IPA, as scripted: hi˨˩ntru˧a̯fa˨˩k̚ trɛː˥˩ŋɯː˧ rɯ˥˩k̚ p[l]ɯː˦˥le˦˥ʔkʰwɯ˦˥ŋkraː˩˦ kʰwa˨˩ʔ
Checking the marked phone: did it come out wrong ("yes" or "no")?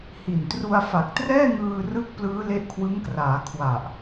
no